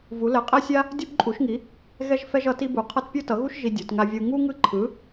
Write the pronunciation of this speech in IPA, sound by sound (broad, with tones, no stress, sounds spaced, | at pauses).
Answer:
v u˧˥ l ɛ˧˥ qʼ ɛ˥ sʲ a˥ | dʲ o˥ b ǃʼ u˧˥ ʃ ŋ i˧˥ | ɣ ɛ˥ ʒ f ɛ˥ ʒ ʌ˧˥ t i˥ b u˧˥ qʰ ʌ˥ t pʲ o˥ t ʌ˧˥ ɣ u˥ ʃ ʒ i˥ dʲ o˧˥ t ŋ a˥ vʲ ɯ˥ ŋ u˥ ŋ ɯ˥ ǃʰ ɯ˧˥